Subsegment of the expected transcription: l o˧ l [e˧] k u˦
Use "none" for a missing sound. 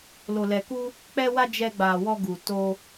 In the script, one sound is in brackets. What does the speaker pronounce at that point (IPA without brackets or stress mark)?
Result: ɛ˧